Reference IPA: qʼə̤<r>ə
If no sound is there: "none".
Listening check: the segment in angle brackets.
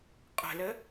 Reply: l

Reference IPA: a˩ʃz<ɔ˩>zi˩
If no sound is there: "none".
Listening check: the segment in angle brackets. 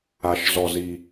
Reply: ɔ˩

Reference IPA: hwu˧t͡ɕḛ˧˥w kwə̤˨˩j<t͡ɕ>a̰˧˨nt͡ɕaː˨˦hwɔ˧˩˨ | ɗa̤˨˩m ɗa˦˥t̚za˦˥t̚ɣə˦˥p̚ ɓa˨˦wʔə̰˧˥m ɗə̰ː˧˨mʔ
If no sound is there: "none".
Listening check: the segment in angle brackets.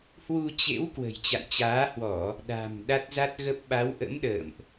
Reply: t͡ɕ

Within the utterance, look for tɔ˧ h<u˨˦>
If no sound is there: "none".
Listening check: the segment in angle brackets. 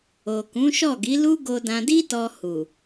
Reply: u˨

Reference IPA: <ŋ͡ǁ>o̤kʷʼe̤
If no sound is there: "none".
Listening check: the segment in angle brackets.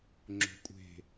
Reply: ŋ͡ǁ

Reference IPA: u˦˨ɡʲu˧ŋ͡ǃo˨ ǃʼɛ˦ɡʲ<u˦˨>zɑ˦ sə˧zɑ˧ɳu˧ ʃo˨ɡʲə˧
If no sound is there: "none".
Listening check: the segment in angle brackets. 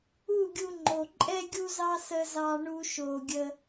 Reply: u˦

